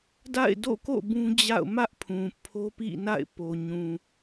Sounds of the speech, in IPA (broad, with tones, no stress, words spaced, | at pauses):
da̰˦˨ɪ̯do̰˦˨ko̰˦˨ bũ˦d͡ʑa̰˦˨ʊ̯ mä˦ʔpʰũ˨ pʰo˦pḭ˦˨na̰˦˨ɪ̯ po˨ɲũ˨